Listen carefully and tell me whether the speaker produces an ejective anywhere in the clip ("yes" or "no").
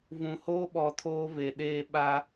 no